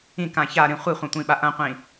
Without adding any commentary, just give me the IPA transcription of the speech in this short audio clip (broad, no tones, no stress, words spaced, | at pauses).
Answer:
ĩkã çaɾĩ χʷiχʷɐ̃tʷĩɓa ʔɐ̃qʷĩ